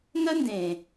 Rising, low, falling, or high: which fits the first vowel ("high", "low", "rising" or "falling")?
high